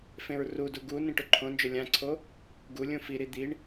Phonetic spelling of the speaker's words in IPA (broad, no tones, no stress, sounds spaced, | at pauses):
f ẽ ɹ r u d u ɡ u n ĩ ʈ ʊ ǃʰ õ n d͡ʒ ʊ lʲ ã ǀʰ o | ɡ u lʲ ũ f i ɾ i d̪ i ɳ